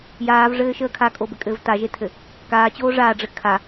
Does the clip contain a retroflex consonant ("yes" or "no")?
yes